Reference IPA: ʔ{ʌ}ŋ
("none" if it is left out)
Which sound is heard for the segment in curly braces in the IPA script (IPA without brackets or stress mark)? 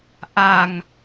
a